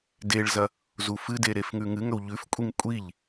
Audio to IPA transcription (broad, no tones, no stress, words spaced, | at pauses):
deɭzɐ | zufɨde ɾefŋʉŋɨŋɵw ʎʉfkʷʼiŋ kʷʼiʎ